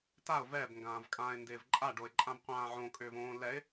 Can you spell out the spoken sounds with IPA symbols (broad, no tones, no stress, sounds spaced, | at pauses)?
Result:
t a ʊ̯ v ɛ b ŋ ɡ ãː v kʼ ãː ɪ̯ n d ɪː v ǃʼ a ɖ o ɪ̯ ǃʼ ã b qʷ ãː ʕ õ kʼ ʏː v õː l ɛ ɪ̯